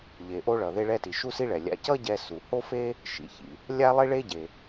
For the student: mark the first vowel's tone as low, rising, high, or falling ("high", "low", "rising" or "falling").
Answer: low